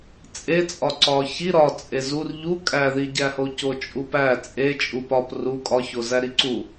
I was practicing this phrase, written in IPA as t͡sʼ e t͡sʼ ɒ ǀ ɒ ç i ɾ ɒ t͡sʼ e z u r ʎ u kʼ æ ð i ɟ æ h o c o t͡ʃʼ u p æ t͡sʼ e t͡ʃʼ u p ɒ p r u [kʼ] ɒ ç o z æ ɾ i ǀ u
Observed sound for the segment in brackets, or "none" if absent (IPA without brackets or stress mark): kʼ